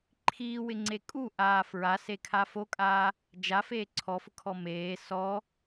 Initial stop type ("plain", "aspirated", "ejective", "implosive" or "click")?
click